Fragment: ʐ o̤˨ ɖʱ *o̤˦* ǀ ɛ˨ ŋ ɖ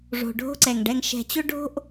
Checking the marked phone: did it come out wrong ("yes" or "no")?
no